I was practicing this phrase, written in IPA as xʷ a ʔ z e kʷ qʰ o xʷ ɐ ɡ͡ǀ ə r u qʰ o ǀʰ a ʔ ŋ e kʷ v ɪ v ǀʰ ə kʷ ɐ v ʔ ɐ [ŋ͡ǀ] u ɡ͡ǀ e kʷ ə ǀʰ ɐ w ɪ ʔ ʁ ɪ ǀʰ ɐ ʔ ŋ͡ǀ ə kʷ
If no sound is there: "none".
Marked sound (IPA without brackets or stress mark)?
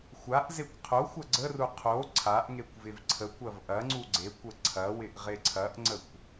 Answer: ŋ͡ǀ